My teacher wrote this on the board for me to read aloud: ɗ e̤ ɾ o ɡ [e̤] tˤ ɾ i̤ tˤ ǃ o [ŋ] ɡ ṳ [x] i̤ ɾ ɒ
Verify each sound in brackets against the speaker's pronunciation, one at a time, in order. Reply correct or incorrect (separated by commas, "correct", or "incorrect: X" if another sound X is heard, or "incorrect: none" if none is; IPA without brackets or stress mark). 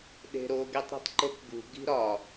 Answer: incorrect: e, incorrect: k, incorrect: ɡ